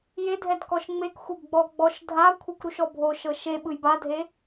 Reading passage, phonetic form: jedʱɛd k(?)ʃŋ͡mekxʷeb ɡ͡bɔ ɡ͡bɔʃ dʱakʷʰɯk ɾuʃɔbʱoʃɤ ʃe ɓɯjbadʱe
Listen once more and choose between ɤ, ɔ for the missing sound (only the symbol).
ɔ